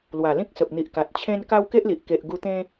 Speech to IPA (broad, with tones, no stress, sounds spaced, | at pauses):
l w a˨˩ l ĩ˦ k̚ s ə˨ p̚ n̪ i˨ ʔ k a˨ t̚ t͡ɕʰ ẽ˧ n k a˦ w k e˦ ʔ l i˨ ʔ k e˨ ʔ ɡ u˧ t̪ ẽ˦